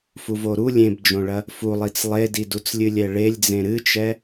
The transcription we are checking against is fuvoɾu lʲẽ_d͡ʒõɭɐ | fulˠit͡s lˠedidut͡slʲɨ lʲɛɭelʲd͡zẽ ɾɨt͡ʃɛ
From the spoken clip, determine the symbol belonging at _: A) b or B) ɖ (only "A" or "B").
A